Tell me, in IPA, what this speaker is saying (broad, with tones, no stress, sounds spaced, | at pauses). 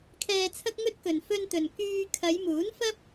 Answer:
kʰ ɛː˧ t͡sʰ ɐ˥ k̚ ŋ ɵ˥ t̚ k ɵ˨ n f ɵ˧ n t̪ ɵ˨ n k yː˧ kʰ ɐ˨˧ j m uː˨˥ n f ɐ˥ p̚